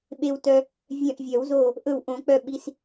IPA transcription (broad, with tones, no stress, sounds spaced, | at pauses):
ɓ e˧ w t œ˧ | vʲ œ̃˧˩ ʔ vʲ œ˨˩˦ w z o˧˩ | ʔ ɵ˧˩ w ʔ õ˨˩˦ k͡p œ˧˩ ɓ i˧ s